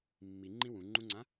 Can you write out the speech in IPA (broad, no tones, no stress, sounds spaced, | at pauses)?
mː i ŋ͡ǃ ĩ w ũ ŋ͡ǃ ũ ŋ͡ǀ ã